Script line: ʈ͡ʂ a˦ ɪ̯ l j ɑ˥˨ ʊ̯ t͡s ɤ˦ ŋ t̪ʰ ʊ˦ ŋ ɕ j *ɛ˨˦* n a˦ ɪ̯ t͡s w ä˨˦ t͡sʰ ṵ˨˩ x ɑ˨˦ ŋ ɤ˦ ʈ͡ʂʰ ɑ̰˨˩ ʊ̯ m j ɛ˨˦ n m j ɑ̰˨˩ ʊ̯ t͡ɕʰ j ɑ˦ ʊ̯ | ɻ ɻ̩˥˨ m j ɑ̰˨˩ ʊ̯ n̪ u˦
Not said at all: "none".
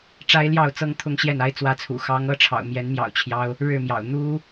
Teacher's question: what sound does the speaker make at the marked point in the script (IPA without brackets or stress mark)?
ɛ˥˨